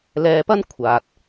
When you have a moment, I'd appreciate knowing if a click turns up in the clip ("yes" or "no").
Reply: no